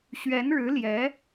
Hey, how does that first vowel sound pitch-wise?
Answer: rising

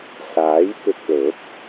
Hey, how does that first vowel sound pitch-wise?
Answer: rising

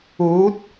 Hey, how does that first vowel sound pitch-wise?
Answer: rising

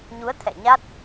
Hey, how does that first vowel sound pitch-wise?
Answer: rising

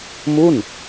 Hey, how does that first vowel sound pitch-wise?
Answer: falling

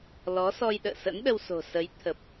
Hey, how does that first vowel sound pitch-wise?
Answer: rising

